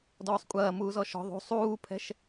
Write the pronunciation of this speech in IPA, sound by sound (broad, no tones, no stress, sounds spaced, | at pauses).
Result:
d ɔː sˤ kʷʼ ɐː m uː z ɔ ʃ ɔ̤ ðˤ ṳ sˤ uː pʰ ɛ̤ ʃ